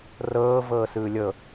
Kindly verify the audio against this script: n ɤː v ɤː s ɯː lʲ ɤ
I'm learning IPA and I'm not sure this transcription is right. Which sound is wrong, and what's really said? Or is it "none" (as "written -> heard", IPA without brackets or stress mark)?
n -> r